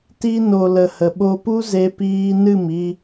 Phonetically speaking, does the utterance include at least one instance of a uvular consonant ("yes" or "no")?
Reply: no